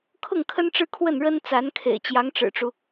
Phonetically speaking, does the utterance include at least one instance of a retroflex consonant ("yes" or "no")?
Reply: yes